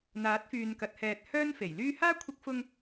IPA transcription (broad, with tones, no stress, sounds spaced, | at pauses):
n̪ aː˨˥ t̚ f yː˨ n k ɐ˨˥ t̚ h ɛː˨ t̚ h œː˥ n f e˨˩ j l yː˥ h aː˥ kʷʰ ɪ˧ k̚ f ʊ˧ ŋ